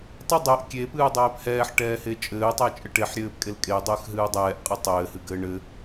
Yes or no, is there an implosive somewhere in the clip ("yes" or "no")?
no